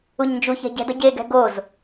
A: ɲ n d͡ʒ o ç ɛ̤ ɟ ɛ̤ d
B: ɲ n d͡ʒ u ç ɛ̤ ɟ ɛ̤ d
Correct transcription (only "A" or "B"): B